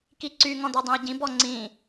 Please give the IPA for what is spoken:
kiǀy ŋɔ̃dɑdˤẽi̯ɟĩ bɔŋ͡ǀĩ

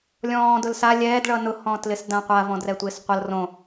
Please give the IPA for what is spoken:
lʲɔ̃ː dʊlsa lʲɛːdɭʌ nʊhɔ̃ːtlɪs dãqʷa vɔ̃drɛtʷɪːsqʷʌl rõ

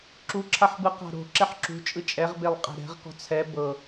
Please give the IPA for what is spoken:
ǁuǁʰaħbɯ qa̤ɾo̤ ǁɛħǁṳt͡ʃʼɯ t͡ʃʼɛʁbelˠ qʼɛ̤ɾɛ̤ʁ kɔ̤t͡sʰɛ bɤ

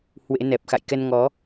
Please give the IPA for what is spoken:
hwḛ˧˥nɛ˨˩p̚ xa̰˧˨jkɛ˧nŋɔ˨˦

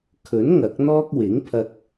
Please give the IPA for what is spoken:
kʰɵ˨˥n ŋɐ˨˥k̚ n̪ɔː˥k̚ wɪ˨˥ŋpʰɐ˧k̚

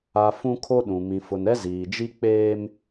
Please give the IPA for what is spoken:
a˨ fũ˦ kʰo˦ɗũ˨ mĩ˨fʊ˨nɛ˦ ziː˨d͡ʒi˦ k͡peː˦m

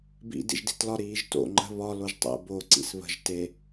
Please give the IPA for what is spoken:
bḭ dḭʒdi̤tlɒ ɾiːʒto̰ ŋ͡ǃə̤ βɒ loʒtˤḛ bo ǀḭsβə̤ʒ te

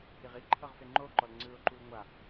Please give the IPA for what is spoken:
iʁiǃʰɤʁ feŋ͡ǃoǃɔl ŋ͡ǀɯʊ̯ǃul ŋʷa

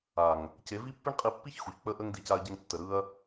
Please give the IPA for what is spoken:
a˨ŋ | ce˨˦vi˦pːi˦ɳqʼi˧ pːi˦çxu˨ç k͡pə˧ʔə˧ŋ di˧ca˧ɐ̯ɟə˧ŋ tːə˨ɾɯ˧ɐ̯

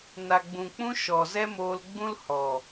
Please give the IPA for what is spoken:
na˨ɡ͡bũ˨k͡pũ˧ ʃɔ˨zɛ˦moː˧lɡ͡bũ˦l hɔ˨

